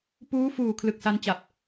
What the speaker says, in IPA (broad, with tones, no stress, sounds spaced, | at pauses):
p uː˦˥ f uː˨˩ kʰ l ɯ˨˩ k̚ s a˧ n t͡ɕ a˨˩ p̚